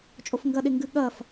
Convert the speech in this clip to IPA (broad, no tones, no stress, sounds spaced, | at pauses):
t͡ʃʼ o f ŋ ɡ ɐ ɗ e ŋ ɡ ɨ ɠ ɐ f